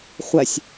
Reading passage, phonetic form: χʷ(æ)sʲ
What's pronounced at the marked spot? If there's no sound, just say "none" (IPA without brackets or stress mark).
æ